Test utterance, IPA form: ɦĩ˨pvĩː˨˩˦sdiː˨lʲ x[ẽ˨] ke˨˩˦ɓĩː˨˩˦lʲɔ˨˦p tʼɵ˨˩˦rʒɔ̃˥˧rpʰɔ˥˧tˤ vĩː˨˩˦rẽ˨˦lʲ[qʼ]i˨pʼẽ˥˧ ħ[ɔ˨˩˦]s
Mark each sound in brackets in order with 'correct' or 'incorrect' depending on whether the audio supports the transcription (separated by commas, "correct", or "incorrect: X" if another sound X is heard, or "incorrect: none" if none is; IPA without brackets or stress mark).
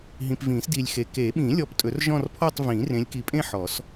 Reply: incorrect: e˨, incorrect: k, correct